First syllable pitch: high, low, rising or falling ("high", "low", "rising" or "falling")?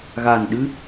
low